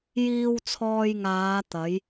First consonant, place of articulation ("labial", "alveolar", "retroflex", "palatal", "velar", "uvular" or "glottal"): palatal